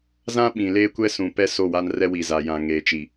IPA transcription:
zã˦ ɓĩ˨leː˦kʷɛ˦ sũ˨pɛ˦ so˦˨wa˦nrɛ˦ wi˨za˨jã˨ ŋeː˨t͡ʃi˨

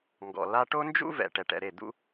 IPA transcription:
ŋɡɔ̰˨ la˧ʈo˦nd͡ʒṵ˦ vɛ̰˨ ʈɛ˨ʈɛ̰˨ɾe˦˨ d̪ṵ˦

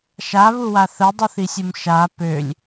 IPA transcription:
ʃaβuwa θədˤuθisʲum ʃa pølʲ

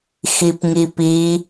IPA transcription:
xipŋipi

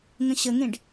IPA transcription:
ŋə̃ɕəŋẽɖ

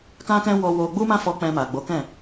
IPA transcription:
kã˦kɛ̃˦ wɔ˧ wo˧ɡ͡bu˦mã˦fɔ˧ k͡pɛ̃˧ma˨ɡ͡bo˨˦kɛ̃˦˨

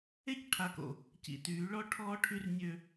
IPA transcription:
e˦cʈʰa˨ko̰˨ | cḭ˨tyː˨˦ ɭɔ˦ ʈʰɔː˦ʈʰy˦rnʲø˦

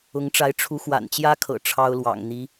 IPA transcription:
ʊ˧˥ŋʈ͡ʂa˧˥ɪ̯ ʈ͡ʂʰu˧˥xwa̰˨˩nt͡ɕjä˥kʰɤ̰˨˩ ʈ͡ʂʰɑ˥ʊ̯lwɑ̰˨˩ŋ n̪i˧˥

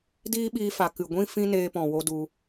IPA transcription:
diː˦ɓiː˧fa˨ kɨ˨ɡʷĩ˦ fĩ˧ neː˧pɔ̃˨ wo˦du˧

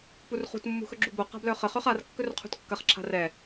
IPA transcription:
purχṳt mːṳxɵɡ͡ǁubo qa̤blœχə χœχar kːɵrqʰṳtkːɐχ ǁʰa̤rɛ

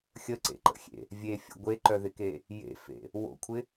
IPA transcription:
xʲəǀḛǃə̰xʲḛ | vʲefʲə̰ ɡʷeǃœðɪke | jḛfḛ | wo̰kʷʰɪ

